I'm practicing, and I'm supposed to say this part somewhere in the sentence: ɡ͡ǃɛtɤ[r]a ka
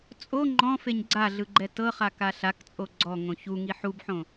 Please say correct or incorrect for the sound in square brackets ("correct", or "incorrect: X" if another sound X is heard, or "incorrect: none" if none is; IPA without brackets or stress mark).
incorrect: χ